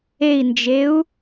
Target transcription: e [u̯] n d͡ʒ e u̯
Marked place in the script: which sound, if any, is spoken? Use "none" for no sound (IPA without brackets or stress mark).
i̯